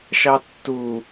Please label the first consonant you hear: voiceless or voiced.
voiceless